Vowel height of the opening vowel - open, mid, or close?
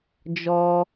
mid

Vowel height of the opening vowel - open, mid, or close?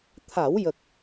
open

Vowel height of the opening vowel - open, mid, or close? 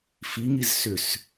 close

